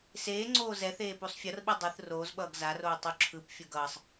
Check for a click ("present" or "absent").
present